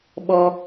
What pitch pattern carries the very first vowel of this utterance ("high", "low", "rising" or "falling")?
high